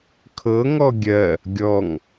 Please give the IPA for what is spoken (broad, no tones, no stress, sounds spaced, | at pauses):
kʰ ɤ ŋ ɔ ɡʲ ɜ | ɡʲ ɔ ŋ